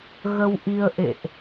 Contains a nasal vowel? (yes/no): no